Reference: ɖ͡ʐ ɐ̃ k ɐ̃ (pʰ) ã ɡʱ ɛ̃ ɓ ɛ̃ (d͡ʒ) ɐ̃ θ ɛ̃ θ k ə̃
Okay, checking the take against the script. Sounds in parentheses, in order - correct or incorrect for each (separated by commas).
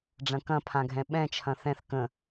correct, incorrect